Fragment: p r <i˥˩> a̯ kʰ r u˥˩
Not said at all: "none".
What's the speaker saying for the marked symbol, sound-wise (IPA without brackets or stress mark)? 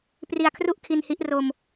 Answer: i˧